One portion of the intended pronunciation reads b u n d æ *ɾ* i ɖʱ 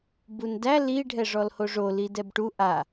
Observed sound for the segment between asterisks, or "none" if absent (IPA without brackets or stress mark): l